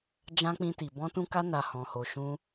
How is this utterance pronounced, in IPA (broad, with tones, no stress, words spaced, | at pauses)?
d͡ʒã˦k͡pĩ˧ti˨ bɔ̃˧tũ˧ka˧na˨ hɔ̃˨ho˨ʃũ˧